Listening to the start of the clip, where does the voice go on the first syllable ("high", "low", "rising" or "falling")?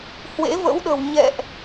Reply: rising